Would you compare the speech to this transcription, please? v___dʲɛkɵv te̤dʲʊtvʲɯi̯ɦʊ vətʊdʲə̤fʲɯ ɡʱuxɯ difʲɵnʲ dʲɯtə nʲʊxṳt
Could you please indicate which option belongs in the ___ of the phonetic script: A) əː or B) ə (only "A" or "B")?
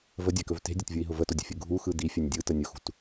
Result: B